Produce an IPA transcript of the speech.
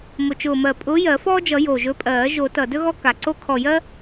mʊ˨˩t͡ʃʊː˨˩mɜ˨˩ pʼʊː˨˥jɜ˨˩˦fɔː˦d͡ʒʌ˨˩˦ jo˨˩ʒɵ˨˥pʼɜː˨˩˦ ʒo˨˩˦tʌ˨˩ dɵ˦ɣɔ˦ ka˨˩ǀo˦ kʰɔ˨˩jɜ˦

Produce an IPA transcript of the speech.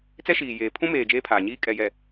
t͡sɛ˦ʃiː˨ jeː˨ pʰũ˦meː˨ d͡ʒeː˦pʰaː˨ɲiː˦ kʼɛ˨jɛ˨

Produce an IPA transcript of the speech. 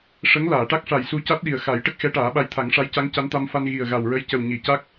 ʂə˧˥ŋlaː˨˩˨ʈa˦˥k̚ʂa˨˩j su˧ca˦˥t̚ ɗi˨˩ə̯xa˨˩˦jʈə˦˥k̚ xɛ˧˥ʈaː˨˩˦ɓa˧j t̪ʰa˨˩˦ŋʂa˧˥jca˧˥ŋ ca˧˥nt̪a˧mfa˧n ɣi˨˩ə̯ɣa˨˩wɹə˧˥jcə˨˩w ɲi˨˩˨ca˦˥k̚

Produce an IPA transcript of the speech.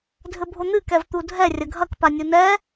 dʱɘbʱon̪ɨ kɛvt̪udʱɛ rʲɐɡʱɐk panʲunɛ

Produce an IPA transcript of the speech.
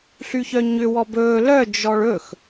ɬyçœɲʏ wɔbɵː lœ d͡ʒɔɭɵx

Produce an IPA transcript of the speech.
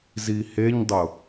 ziheɲdˤʊ

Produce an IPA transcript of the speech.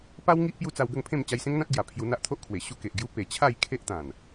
pa˦wŋi˦ʔ pju˦t͡sa˧wɡə˥˧ŋpʰẽ˥˧m t͡ɕa˧jsẽ˦ŋn̪ã˦t̚ɡja˨˩ pʰju˧n̪a˦ʔt̪ʰo˦ʔkʰwe˨˩ ɕu˦ke˨ʔɡju˦ pe˨˩t͡ɕʰa˥˧j kʰe˦ʔt̪ã˨˩n

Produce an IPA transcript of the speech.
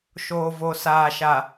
ʃoː˨vo˨saː˨ʃa˨

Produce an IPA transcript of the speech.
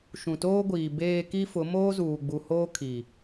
ʃũ˨toː˦ɡʷiː˨ beː˨ ki˦fʊ˨˦ moː˦zuː˨ɡ͡bu˨hoː˦ kʰi˨

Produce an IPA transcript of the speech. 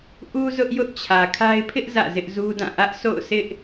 ʔu˦ zʊ˦ʔjʊ˦ʔt͡ɕʰä˨kʰa˦ɪ̯ pʰɪ˦ʔ zä̰˦˨zɪ˦ʔzu˦dã˦˨ ʔä˦ʔ sʰo̰˦˨ʊ̯sɪ˦ʔ

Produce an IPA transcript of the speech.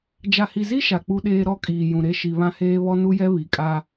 d͡ʒa˨hi˨zi˦ ʃa˨k͡pu˦ɗeː˦ ɾɔ˦ kʼiː˨jũ˨ ɾe˦ʃi˨βã˦heː˦ βɔ˦nu˦jɛ˦ βi˨kʼa˦

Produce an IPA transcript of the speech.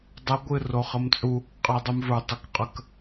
dˤə ɡʷɨ roχəmt͡sʼu | qʼɛdˤumvə˞ tˤukqʼək

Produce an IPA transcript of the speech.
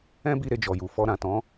ɛ̃˦bi˧ ɾe˧d͡ʒɔ˨ju˨ fɔ˧ɾã˨tɔ̃˨˦

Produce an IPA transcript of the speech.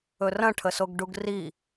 ɵrɐ̃ʈʰəsoɡ ɖuɡri

